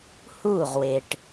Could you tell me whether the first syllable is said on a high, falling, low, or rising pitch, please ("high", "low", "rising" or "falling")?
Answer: falling